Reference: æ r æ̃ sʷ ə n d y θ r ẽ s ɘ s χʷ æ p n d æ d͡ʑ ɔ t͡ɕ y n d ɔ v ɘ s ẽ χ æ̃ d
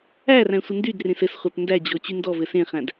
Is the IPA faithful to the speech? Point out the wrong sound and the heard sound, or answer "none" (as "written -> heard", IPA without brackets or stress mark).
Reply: θ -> d